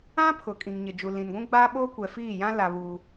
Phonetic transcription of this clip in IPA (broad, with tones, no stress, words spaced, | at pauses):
ã˦pʰʊ˨kʼĩ˨ŋ ɲɪ˨d͡ʒu˨lĩ˨nɡʷũ˦ ɡ͡baː˦ɓoː˦ kʷɛ˨fiː˦˨jã˦ la˦βuː˦